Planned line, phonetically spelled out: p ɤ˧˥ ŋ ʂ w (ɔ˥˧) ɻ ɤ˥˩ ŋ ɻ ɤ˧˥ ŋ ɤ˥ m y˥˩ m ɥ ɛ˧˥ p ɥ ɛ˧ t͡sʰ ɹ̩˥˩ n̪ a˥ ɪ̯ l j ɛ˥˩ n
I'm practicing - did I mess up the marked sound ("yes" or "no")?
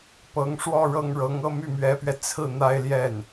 no